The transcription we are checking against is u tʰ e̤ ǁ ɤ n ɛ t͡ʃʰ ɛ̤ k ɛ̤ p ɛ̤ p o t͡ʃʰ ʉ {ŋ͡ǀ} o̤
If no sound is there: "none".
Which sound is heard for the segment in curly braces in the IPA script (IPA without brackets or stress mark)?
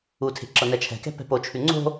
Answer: ŋ͡ǀ